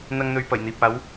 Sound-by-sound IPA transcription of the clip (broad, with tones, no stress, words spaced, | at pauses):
n̪ɐ˥ŋn̪ɵ˧ɥpɐ˨˩j n̪iː˨p̚aː˨˥w